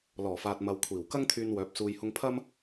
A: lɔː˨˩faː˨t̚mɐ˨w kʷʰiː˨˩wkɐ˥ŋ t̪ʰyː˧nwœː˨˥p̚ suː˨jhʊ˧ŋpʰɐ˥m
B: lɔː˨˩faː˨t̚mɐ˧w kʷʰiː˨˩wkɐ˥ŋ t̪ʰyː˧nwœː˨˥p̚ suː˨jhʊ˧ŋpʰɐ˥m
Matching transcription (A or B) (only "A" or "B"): A